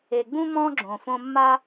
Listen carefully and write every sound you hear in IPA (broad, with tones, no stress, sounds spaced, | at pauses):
e˨ ɡ͡b ũ˧ m ɔ̃˦ ɡ͡ǁ õ˨ f õ˧ mː a˦